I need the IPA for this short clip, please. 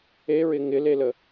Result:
e ɹ ɪ ŋ ɪ l e l ə

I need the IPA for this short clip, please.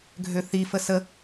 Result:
ɡʱ ø θ i f ə s ə

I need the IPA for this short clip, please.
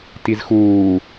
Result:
t i z x uː

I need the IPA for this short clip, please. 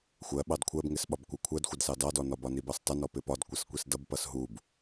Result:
xʷ ɜ ɓ ɑ d kʷʰ ɜ b ŋ ɪ s ɓ ɒ b kʷ ɪ kʷʰ ɜ d xʷ ɪ d s ɑ d ɑ d ɔ n ɒ b ɒ n i b ɑ s tˤ ɪ n ɔ p ɪ p ɒ d kʷ ʌ s kʷ i s d ʌ b p ʌ s ɦ u b

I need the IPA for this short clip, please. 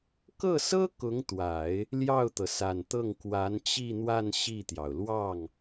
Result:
k ɤ˥˩ s ɤ˥ k ʊ˧˥ ŋ t̪ w a˨˩˦ ɪ̯ | l j ɑ˥˩ ʊ̯ t̪ ɤ˩ s a˨˩ n t̪ ɤ˥˩ ŋ k w a˧˥ n t͡ɕ i˥˧ n̪ w a˥˧ n ɕ i˥˩ t̪ j ɑ˩ ʊ̯ l w ɑ˥˩ ŋ

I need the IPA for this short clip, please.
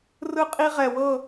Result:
r ɯ˥ qʼ i˥ ʁ ɛ˧ w ɤ˥˧

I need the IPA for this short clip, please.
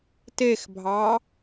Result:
t e x bʱ ɑ

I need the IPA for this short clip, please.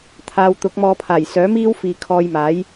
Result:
t̪ʰ aː˨˧ w t̪ ʊ˨˥ k̚ m ɔː˧ pʰ aː˨˩ j s œː˨˥ m iː˥ w f iː˨ kʰ ɔː˧ j m aː˨˥ j

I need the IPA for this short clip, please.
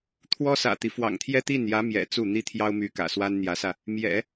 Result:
t̪ʰ w ɔ˥ s ä̰˨˩ t̪ i˦ f w ɑ̰˨˩ ŋ t̪ʰ j ɛ˥ t̪ i˥˩ n j ä˧˥ m j ɛ̰˨˩ t͡s u˥˩ n̪ i˥ t̪ʰ j ɑ˥ ʊ̯ m y˧˥ k ä̰˨˩ s w a˥ n n̪ j ä˧˥ s ä˧ | m j ɛ̰˨˩˦

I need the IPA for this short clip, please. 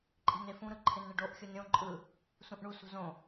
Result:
ǃʼ i̤ n e f ũ ɾ ɯ ǃʰ ɪ n ɳ ɪ ɖ o ʔ xʲ u n ɾʲ õ ǃʼ ɯ | s ũ ʔ ɳ u s ṳ z õ

